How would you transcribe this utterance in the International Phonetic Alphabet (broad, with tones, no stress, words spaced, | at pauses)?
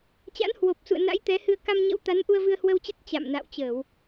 t͡ɕa̰˧˥nhwo˨˩p̚sṵ˧˨ə̯ na̰˧˥jt̪ɛ˨˦hɨ˧ə̯ ka˧mɲə̰˧˥wt̪a˨˦n ʔu˧ə̯vɨ˧ə̯hwə˧wt͡ɕə˦˥t̚ t͡ɕa̰˧˨mna̰˧˨wt͡ɕəː˧˩˨w